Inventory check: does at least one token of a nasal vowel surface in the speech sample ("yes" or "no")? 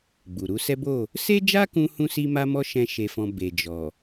yes